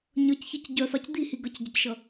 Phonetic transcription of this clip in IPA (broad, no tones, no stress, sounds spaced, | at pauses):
ɲ ʌ c ç i c ɟ œ f a c d̪ i h i ɡ ʌ c ɟ ə c ʃ ʌ